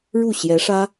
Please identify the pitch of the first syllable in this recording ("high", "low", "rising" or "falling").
falling